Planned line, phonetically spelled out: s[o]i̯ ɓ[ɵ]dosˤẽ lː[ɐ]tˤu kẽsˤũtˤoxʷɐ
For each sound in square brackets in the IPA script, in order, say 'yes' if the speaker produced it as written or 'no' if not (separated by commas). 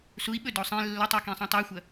no, yes, yes